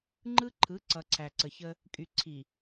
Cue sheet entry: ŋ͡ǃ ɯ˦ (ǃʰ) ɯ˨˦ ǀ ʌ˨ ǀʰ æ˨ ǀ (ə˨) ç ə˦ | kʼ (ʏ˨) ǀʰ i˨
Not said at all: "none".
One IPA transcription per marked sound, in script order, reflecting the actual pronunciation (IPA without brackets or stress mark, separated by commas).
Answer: ǃʰ, ə˨, y˨